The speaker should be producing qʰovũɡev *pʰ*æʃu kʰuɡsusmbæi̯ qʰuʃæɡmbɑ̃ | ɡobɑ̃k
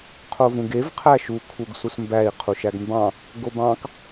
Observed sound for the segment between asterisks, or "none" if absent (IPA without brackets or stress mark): qʰ